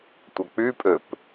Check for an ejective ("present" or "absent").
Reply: present